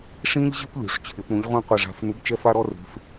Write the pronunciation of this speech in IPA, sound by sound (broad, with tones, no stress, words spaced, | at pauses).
ʂĩ˥ʎʑɪ˥p lʲṳ˨˩˦ʂt͡ɕʰɪ˨˩˦pɾũ˨˥ʎ ʁʷĩ˥qʷɪ˦˨ʐa̤˦˨f nu˨˥bt͡ʃɛ˥fa˥ɾɔ˥ re̤˨˥f